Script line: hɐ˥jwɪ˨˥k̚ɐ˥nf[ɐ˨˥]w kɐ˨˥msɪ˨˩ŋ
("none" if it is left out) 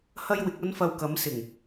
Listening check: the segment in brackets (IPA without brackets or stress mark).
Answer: ɐ˧